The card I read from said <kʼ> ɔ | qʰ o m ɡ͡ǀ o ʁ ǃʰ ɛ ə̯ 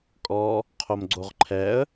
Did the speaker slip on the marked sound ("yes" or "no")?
no